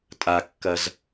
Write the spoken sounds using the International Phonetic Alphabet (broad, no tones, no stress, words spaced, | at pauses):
tʼakːɐz